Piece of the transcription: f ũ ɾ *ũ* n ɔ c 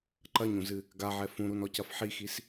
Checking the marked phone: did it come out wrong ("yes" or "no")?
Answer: yes